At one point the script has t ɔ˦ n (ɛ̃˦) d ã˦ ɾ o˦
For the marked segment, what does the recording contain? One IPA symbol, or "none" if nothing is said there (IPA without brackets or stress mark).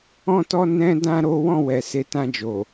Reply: ɛ̃˦